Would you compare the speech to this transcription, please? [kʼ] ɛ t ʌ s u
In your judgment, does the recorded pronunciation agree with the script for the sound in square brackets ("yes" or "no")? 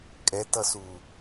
yes